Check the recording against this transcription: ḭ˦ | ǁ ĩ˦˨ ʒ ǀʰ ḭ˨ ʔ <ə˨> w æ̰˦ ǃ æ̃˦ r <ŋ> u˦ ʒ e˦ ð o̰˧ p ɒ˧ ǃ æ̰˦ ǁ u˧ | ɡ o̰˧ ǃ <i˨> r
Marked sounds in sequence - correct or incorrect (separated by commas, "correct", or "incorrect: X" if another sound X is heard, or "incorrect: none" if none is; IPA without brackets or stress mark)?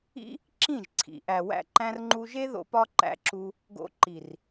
incorrect: æ˨, incorrect: ŋ͡ǃ, correct